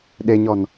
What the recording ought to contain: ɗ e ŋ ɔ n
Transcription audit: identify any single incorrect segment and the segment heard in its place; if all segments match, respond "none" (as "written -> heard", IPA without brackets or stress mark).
ŋ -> ɲ